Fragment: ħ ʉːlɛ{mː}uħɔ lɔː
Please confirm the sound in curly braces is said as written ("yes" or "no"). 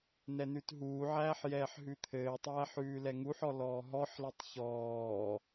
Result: no